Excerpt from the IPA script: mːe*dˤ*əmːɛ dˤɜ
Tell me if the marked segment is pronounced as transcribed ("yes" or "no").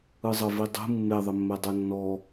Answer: no